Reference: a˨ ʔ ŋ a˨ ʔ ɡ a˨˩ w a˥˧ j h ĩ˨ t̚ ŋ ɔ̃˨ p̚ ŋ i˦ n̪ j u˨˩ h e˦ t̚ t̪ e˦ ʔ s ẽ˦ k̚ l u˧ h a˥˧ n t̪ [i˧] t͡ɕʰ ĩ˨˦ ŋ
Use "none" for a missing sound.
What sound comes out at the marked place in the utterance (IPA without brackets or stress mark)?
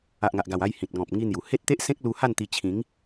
i˧